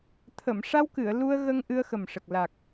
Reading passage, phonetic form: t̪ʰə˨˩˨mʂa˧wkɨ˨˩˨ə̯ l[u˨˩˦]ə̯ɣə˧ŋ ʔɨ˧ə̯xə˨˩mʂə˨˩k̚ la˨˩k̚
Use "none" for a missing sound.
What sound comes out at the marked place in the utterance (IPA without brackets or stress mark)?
u˧